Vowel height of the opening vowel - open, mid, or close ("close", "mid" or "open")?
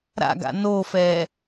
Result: open